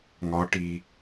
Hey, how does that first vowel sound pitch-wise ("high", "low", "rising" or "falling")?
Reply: rising